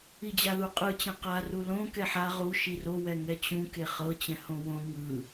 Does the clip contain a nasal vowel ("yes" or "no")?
yes